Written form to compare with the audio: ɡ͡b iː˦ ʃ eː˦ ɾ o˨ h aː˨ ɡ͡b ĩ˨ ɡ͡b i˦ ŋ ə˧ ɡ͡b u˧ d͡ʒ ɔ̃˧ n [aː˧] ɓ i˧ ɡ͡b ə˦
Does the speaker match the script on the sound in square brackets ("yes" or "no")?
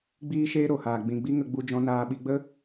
yes